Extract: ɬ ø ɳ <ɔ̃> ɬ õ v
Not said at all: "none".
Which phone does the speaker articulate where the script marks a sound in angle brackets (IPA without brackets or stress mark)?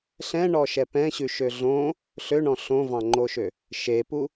ɔ̃